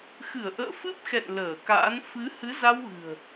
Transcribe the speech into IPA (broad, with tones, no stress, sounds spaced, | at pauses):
x ɨ˧˩ ə̯ ʔ ə̰ː˧˨ f ɨ˦˥ p̚ x ɛ̰˧˨ n l əː˧˩ k a̰ː˧˥ n f ɨ˨˦ h ɨ˨˦ z a˧ w ɣ ɨ̤˨˩ ə̯